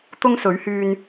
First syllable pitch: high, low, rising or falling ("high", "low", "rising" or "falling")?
high